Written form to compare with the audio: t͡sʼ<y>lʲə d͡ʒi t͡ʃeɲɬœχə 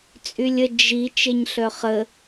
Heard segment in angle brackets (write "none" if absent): y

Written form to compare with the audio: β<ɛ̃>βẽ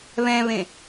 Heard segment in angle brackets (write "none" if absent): ɛ̃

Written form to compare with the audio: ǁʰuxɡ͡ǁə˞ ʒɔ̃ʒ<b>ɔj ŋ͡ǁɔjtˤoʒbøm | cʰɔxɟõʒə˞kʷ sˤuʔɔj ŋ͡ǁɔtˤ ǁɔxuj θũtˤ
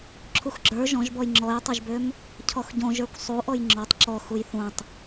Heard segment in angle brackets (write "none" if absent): b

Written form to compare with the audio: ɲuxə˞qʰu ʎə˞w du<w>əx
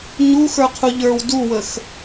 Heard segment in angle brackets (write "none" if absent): w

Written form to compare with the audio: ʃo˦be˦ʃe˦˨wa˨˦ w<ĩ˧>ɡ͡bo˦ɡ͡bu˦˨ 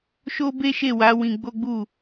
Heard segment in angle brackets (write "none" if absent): ĩ˧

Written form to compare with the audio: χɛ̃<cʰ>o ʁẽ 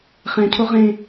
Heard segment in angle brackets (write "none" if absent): cʰ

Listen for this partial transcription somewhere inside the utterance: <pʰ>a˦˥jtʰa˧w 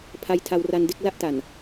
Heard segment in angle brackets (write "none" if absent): pʰ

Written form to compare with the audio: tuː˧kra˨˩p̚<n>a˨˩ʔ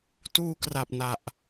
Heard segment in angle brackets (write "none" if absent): n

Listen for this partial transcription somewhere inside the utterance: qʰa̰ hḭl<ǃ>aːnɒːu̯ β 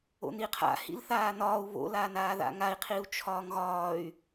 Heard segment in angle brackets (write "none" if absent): θ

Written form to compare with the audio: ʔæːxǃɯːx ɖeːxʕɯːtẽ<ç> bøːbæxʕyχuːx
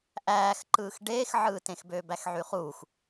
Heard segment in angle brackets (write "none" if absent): x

